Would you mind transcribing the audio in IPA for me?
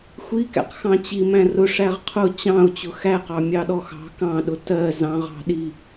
xʷ i k æ̰ q x ɑ̃ t͡ɕ i m æ̃ r ʊ ʂ æ ʁ qʰ ʊ t͡ɕ ɑ̃ ʊ̯ t͡ɕ ʊ x æ q ɑ mʲ ɑ ɗ ɔ x ɑ̤ k ɑ̃ ɗ ʊ t ɜ z ɑ̃ ʁ ɑ̤ ɗ i

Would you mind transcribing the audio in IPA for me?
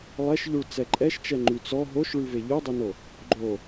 lˠ ɛ ʃ ʎ u ɭ t͡s ɛ ǃʼ ɛ ʃ t͡ʃ ɛ ŋ͡ǃ y t͡s ɔ ɦ o ʃ ɭ y v e ʎ o dˤ e n o | ɡ͡ǃ o

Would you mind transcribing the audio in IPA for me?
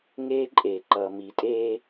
ŋ eː˦ ǃʼ eː˨ ǃ ʌː˨ m i˨ tʼ eː˦

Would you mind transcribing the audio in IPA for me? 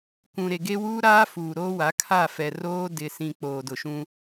k ũ˨ ɾ e˨ ɡ e˦ w uː˦ ɾ aː˦ f uː˨ ɾ oː˦ w a˨˦ kʰ a˦˨ f ɛ˨ r oː˦ d ɪ˨ s ĩ˨ k͡p oː˨ d ʊ˨ ʃ ũ˦

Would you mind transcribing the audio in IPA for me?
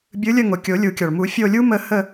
bʲ ɯ˨˥ lʲ ə˦˨ ŋ o˩ kʲ o˨˩˦ lʲ u˨˩˦ kʲ ɔ˩ ɭ m u˨˩˦ fʲ o˦˨ lʲ u˥ m ə˦˨ h ə˦˨

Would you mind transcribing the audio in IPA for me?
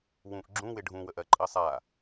w ũ ʔ ɡ͡ǁ ũ w ɪ ɖʱ ũ w ə ʔ ɜ ǃʼ ɜ sˤ a

